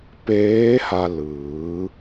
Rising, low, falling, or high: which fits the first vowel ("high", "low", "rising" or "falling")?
rising